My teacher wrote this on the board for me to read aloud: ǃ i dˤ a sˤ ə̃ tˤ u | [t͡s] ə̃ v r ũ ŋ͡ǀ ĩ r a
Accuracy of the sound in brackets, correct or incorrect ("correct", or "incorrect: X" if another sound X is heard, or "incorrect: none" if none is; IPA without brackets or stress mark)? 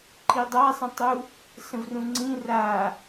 incorrect: s